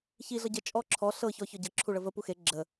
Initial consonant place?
palatal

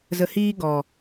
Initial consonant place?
alveolar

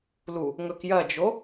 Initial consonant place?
alveolar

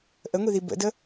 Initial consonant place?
glottal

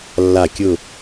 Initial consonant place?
alveolar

